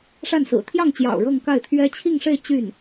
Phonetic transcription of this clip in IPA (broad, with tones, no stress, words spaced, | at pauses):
ʂa˥˩nsɹ̩˨˩ t̪ʰjɑ˥˩ŋt͡ɕjɑ̰˨˩ʊ̯ ɻɤ˥˧ŋ ka˥˩ɪ̯t̪ʰɥɛ˥ t͡ɕʰi˥˧ŋʂe˥˧ɪ̯ t͡ɕy˥˩n